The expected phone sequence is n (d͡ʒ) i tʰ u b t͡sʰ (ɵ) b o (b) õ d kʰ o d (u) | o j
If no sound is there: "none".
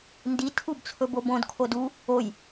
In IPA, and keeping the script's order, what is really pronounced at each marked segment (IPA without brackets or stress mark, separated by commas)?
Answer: d, ɵ, b, u